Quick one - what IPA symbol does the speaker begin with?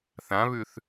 θ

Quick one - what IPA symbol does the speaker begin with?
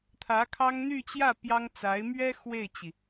t̪ʰ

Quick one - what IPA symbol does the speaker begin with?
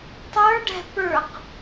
tˤ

